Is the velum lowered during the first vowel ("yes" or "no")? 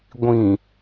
yes